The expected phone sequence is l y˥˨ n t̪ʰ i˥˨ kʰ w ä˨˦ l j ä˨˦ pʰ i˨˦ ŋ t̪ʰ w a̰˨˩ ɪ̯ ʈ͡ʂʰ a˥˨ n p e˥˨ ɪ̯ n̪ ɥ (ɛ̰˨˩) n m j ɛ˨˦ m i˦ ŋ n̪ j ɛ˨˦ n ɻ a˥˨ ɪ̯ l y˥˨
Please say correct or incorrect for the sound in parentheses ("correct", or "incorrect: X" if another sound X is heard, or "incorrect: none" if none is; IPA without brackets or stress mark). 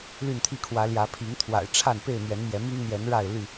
incorrect: ɛ˨˦